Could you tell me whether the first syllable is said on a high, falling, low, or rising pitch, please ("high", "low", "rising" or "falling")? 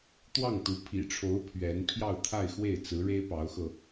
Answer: falling